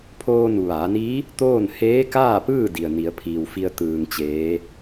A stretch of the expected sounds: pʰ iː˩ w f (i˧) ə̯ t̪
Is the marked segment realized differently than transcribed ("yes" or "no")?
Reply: no